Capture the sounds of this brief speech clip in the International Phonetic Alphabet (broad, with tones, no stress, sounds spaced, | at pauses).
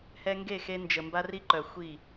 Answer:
h ɛ˧ ŋ ɡ e˦˨ x e˧ n d͡ʒ ə˨ m b a˦ r i˦ ǃ œ˨ xʷ i˦˨